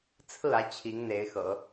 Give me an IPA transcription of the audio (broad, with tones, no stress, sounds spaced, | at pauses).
t͡sʰ ɹ̩˥˩ ä˧˥ t͡ɕʰ i˧˥ ŋ n̪ e˧˥ ɪ̯ x ɤ̰˨˩˦